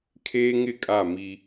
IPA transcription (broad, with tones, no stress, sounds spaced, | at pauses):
kʰ eː˦ ŋ ɪ˦˨ kʼ a˦˨ m i˦